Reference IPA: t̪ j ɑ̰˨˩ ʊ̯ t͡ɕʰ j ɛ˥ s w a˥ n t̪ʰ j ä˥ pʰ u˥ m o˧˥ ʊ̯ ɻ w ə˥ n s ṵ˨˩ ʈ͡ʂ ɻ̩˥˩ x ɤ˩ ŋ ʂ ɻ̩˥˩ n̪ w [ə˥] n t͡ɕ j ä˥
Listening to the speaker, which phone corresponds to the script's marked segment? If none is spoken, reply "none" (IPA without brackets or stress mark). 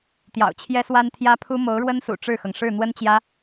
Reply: ə˥